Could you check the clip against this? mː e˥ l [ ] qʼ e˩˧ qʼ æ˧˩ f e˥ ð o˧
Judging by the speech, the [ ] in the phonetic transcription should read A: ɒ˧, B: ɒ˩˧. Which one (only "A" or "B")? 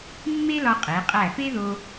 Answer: A